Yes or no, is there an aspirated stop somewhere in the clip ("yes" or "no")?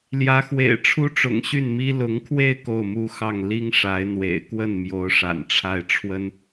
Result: yes